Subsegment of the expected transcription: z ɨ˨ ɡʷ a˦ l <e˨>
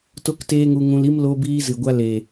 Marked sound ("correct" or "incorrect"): correct